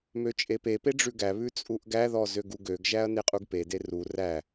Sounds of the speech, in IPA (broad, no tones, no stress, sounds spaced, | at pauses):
m ø t͡ʃʼ e p e p e ɖ͡ʐ ʉ ɡ æ β ʉ t͡sʼ u ʔ ɡ æ ð ɔ z ø ɡ u ɡ ø ɡ ʒ æ ɐ̯ n e qʼ u ɡ p e d e r u r æ